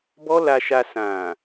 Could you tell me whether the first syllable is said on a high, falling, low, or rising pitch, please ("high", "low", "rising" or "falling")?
high